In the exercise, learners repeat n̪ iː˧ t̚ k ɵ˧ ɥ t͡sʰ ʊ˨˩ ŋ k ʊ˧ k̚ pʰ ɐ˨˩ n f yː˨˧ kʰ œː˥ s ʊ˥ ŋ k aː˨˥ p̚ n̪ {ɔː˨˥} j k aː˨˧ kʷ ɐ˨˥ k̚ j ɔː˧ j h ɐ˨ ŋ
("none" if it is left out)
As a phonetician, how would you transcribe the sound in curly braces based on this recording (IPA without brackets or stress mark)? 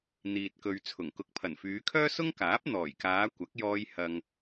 ɔː˨˩